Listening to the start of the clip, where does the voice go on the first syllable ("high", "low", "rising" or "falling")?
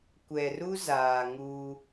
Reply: low